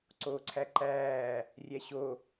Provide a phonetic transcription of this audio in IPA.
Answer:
ǀ oː ǀʰ æ ǃ æː | rʲ æ ɕ o

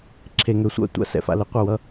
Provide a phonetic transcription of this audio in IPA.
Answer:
ǁʰ e˨ ŋ ø˨ sʷ a̰˦ tʷ a̰˧ s ɛ̰˧ f a̰˧ l ə˧ qʷ ʌ˦˨ w ʌ˦

